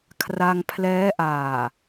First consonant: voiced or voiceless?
voiceless